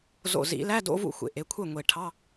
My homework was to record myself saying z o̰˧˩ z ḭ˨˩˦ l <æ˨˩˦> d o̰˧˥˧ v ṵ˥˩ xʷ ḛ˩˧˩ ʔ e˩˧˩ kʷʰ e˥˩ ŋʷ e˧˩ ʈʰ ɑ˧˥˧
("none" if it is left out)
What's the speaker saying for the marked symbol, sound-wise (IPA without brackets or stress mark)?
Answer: æ˧˥˧